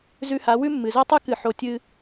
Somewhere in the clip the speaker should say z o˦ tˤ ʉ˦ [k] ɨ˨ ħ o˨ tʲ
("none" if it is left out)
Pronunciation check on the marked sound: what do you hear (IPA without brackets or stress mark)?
k